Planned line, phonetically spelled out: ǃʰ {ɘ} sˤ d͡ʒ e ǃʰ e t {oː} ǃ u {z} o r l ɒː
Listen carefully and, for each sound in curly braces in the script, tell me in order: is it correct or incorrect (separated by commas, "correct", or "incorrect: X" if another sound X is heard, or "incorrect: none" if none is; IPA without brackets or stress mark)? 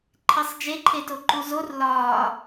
incorrect: e, incorrect: o, correct